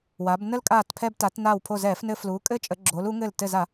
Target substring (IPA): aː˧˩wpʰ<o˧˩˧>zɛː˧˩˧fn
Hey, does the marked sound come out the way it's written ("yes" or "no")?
no